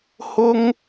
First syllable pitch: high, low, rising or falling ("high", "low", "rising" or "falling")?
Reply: high